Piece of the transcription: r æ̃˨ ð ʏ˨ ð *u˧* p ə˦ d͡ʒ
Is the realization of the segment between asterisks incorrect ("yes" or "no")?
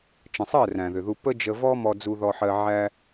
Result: no